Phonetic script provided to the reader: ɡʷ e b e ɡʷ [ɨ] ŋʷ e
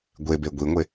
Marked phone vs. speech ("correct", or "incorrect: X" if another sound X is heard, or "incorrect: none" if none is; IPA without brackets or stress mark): incorrect: i